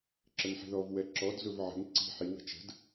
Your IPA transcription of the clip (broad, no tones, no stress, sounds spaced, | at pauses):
ǁ ə ŋ ħ i̤ ð ɔ v w ɛ ǁ ɔ d z ʊ v ʕ ə̤ ŋ ǀ i̤ ħ i w ə̤ t͡ʃ ə̤ d